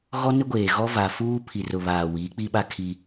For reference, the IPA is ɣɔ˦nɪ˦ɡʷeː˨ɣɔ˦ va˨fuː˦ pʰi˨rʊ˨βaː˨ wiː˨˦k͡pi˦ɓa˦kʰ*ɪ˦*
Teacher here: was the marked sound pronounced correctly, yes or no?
no